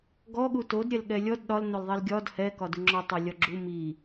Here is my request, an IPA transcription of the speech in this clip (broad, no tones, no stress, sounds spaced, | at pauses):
ɡ ɔ ɠ u t o d ɾʲ ɛ l ɠ ɛ lʲ ɔ d ɗ ɒ l n o l ðˤ i l ɡʲ ɒ d h ɛ k ɒ d u ŋ͡ǁ ɒ tˤ ɛ lʲ ɒ ɡ͡ǁ u m i